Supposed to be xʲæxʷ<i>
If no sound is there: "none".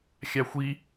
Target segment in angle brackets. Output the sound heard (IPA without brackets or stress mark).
i